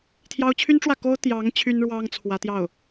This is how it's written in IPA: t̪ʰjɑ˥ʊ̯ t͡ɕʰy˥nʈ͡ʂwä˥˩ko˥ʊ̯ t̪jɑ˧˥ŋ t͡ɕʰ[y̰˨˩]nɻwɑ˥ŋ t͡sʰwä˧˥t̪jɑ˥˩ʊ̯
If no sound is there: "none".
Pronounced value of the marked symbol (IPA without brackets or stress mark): y˥